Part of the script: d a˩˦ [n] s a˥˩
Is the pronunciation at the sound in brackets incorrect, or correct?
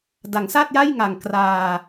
incorrect